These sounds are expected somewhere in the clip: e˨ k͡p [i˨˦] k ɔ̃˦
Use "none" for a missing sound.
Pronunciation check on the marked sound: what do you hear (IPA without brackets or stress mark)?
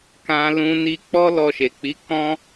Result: i˨˦